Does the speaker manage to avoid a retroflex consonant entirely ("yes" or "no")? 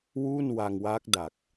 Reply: yes